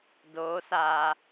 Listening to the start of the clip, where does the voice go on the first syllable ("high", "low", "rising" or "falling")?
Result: rising